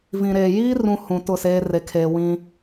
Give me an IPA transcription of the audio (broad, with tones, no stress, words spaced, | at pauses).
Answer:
vĩ˨ɾeː˨ jiː˦rũ˨ hũ˨ tʊ˦˨seː˦ re˨kʰeː˨ wĩ˦